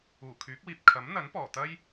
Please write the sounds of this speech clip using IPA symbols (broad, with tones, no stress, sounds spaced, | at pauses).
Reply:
uː˨˩ kʰ yː˨˥ k̚ w iː˨ p̚ kʰ ɐ˨˥ m n̪ ɐ˨˥ n p ɔː˨˩ t̪ ɐ˥ j